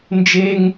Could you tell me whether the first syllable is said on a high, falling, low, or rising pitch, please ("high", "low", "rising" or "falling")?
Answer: high